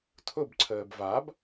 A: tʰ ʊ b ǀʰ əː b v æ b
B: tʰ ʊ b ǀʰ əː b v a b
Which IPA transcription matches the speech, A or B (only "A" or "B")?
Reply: B